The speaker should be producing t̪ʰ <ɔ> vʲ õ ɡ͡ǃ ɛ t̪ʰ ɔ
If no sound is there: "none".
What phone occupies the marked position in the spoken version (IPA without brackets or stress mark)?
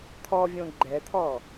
ɔ